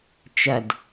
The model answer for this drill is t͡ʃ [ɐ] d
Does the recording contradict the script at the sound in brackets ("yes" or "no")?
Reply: no